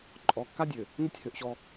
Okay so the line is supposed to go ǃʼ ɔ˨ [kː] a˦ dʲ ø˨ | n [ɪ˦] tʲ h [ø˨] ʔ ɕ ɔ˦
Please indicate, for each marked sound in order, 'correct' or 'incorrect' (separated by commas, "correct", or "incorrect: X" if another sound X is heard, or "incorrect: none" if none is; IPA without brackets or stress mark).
correct, correct, correct